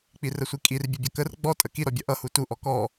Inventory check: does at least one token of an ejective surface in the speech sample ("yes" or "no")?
yes